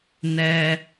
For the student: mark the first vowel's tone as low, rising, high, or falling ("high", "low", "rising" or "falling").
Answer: high